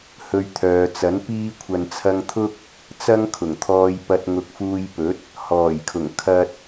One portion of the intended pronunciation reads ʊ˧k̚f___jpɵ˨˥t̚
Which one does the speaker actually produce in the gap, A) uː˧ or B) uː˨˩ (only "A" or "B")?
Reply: A